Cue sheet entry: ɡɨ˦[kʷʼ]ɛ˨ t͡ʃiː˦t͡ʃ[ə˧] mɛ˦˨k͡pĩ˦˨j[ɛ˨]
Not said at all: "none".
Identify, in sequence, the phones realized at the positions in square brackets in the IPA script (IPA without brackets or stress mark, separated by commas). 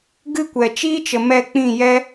kʷ, ə˨, ɛ˦